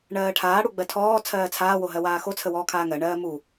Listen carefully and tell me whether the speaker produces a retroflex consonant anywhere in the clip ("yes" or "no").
yes